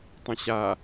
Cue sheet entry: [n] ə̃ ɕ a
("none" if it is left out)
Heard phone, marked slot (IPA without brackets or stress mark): tˤ